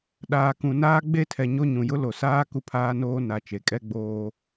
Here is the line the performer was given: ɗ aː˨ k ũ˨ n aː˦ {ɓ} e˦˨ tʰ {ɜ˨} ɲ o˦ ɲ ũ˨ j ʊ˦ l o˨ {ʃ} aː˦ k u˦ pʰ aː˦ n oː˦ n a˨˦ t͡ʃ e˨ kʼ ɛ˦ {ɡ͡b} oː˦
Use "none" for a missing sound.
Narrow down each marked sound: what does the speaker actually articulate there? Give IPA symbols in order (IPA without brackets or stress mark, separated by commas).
ɡ͡b, ɛ˨, s, ɡ͡b